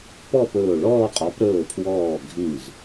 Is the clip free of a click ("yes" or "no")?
yes